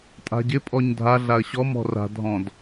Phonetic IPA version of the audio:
tʼa̤ɟɪpʼɔɲ dʱaɮaə̯ ɕɔmɔ̤ ra̤dʱɔ̃d

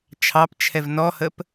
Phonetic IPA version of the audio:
t͡ʃʰɑpt͡ʃʰɛv nɔhəp

